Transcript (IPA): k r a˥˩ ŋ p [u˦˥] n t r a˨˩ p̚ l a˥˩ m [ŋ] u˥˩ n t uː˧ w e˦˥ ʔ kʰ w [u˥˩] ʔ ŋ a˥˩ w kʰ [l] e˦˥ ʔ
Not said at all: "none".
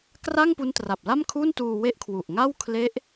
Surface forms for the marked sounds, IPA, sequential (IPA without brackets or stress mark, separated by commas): u˦˥, kʰ, u˨˩, l